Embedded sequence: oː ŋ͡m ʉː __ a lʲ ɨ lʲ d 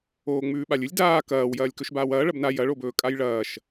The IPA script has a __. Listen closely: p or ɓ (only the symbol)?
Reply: ɓ